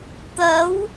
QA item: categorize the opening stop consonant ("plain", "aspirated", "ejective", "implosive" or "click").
plain